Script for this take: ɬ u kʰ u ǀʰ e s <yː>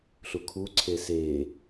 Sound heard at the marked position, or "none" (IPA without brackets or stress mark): eː